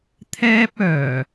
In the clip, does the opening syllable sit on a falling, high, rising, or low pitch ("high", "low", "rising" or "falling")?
high